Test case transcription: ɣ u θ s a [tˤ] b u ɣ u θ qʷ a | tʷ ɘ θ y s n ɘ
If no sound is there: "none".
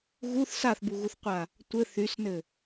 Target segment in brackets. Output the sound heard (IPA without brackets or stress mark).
θ